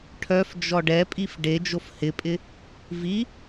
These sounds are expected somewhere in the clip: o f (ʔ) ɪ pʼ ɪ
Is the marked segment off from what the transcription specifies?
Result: yes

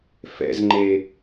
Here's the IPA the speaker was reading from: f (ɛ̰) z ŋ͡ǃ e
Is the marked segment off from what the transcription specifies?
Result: no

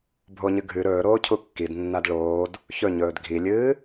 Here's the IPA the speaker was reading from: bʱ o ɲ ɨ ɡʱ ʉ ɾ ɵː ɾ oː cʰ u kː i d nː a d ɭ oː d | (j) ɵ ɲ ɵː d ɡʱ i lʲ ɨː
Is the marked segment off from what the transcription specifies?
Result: yes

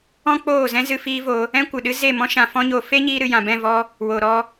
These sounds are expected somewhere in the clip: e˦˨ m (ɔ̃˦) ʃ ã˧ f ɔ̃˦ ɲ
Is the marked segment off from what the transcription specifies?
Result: no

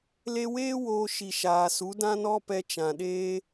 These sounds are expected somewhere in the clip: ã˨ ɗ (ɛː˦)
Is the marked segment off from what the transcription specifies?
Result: yes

